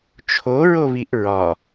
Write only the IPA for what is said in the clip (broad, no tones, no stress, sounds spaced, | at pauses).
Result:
t͡ʃʰ o ɹ o β i ʔ ɹ ɒ